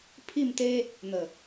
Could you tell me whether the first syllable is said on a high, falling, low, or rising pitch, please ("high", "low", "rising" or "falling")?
falling